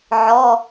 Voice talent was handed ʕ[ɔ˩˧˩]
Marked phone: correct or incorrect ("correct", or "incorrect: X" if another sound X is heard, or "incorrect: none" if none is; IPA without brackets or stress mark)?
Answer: correct